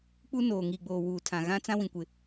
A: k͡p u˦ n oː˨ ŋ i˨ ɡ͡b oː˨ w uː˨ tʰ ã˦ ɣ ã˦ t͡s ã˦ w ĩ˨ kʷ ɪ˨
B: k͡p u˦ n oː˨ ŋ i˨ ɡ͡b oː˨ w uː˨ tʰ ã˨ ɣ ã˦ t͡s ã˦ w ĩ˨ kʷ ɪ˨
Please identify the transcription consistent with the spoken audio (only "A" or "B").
B